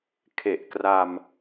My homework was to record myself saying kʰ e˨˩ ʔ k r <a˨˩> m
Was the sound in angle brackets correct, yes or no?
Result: no